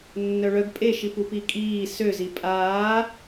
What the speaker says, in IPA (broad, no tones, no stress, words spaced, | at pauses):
nːœɭœɡ pʼeʃip upikʼiː søzi pʼaː